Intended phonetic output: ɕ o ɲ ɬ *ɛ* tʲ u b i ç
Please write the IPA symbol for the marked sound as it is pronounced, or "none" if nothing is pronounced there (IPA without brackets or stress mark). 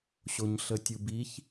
ə